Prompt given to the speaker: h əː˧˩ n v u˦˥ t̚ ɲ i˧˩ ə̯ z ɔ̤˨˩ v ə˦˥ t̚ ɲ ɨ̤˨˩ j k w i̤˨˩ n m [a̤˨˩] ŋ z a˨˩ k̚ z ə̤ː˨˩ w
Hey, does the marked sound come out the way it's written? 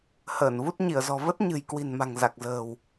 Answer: yes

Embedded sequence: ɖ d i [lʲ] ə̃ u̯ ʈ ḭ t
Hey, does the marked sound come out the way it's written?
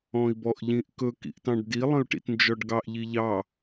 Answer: no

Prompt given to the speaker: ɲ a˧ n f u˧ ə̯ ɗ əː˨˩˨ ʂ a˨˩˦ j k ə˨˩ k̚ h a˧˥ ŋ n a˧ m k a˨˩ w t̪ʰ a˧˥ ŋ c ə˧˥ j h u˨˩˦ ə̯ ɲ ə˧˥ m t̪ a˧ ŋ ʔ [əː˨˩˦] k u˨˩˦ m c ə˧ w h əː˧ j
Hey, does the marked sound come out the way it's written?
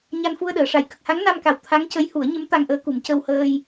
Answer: no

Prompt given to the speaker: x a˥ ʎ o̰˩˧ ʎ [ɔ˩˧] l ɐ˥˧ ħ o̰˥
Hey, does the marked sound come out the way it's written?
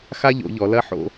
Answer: yes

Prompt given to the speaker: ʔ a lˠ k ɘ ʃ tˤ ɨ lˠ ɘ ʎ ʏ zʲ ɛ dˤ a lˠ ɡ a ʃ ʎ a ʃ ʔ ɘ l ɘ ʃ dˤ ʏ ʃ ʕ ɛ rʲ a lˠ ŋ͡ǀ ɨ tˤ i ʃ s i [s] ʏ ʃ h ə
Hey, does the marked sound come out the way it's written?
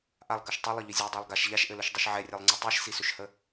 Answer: yes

